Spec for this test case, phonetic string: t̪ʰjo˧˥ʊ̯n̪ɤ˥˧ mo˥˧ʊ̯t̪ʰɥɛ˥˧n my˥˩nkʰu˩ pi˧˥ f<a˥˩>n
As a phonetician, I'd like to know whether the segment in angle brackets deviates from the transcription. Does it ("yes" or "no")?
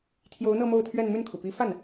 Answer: no